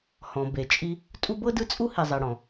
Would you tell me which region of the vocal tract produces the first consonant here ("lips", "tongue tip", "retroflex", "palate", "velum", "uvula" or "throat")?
throat